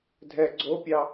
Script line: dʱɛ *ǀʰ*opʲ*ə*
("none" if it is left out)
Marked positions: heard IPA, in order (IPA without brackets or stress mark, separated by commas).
ɡ͡ǀ, ɑ